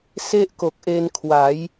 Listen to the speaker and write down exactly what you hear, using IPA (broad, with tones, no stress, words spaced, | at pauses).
se˥˩ʔko˨˩k̚ʔe˧nkʰwa˩˦j